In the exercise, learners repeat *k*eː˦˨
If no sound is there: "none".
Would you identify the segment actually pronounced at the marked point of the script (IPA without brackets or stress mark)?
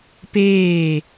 p